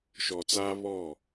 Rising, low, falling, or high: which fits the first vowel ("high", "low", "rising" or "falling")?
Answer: low